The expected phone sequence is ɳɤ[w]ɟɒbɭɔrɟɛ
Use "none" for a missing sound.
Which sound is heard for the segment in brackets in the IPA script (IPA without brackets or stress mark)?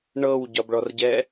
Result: w